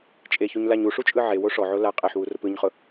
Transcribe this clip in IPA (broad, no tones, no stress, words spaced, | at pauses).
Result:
t͡ʃʼeçuɲlaɲ uʂut͡ʃʼɯ ʕewo ʂɔʕo la qʼeħwurʊp ɯɲχʊ